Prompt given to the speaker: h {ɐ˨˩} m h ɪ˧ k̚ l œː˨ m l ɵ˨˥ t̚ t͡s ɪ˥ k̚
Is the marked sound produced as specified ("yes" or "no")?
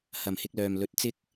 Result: yes